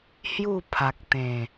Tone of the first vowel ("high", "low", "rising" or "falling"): falling